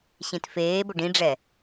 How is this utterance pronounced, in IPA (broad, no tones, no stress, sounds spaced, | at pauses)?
ɕ ĩ t f eː b ʊ ɖ ĩ ɖ͡ʐ ɛ